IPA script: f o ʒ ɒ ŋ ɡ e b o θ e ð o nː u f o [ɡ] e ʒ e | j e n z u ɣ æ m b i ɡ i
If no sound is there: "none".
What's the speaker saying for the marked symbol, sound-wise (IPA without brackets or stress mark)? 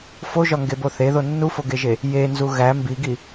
ɡ